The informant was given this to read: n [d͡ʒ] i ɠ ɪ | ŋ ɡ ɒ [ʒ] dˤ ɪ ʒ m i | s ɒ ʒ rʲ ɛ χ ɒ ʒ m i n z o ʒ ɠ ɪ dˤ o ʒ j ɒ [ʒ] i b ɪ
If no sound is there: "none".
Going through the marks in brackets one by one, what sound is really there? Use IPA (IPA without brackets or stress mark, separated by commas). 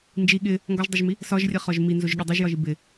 d͡ʒ, ʒ, ʒ